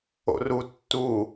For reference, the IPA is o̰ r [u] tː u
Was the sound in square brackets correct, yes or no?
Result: yes